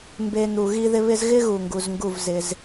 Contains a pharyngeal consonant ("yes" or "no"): no